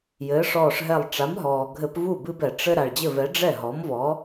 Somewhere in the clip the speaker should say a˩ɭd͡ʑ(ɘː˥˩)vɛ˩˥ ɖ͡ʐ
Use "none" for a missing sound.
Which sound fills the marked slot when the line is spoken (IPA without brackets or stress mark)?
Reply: ɘ˥˩